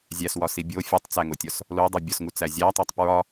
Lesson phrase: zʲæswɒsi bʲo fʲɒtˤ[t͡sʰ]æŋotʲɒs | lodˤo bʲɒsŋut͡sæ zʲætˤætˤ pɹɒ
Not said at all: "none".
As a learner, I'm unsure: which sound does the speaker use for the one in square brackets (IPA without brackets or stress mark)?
t͡s